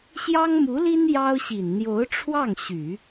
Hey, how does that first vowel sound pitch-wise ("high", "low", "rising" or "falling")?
high